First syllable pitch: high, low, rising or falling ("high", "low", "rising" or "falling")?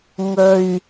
low